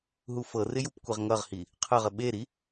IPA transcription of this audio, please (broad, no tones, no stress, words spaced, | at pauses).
ɦufɤrɪ jupkʷeʁŋʌʁhi | qʰɤʁə ɓeɾi